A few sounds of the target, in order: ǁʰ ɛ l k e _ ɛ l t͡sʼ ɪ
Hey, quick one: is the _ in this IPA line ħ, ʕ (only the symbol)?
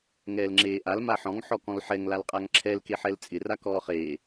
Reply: ħ